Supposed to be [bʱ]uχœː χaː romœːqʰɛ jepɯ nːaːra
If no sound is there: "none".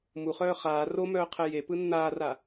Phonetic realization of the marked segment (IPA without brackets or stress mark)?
m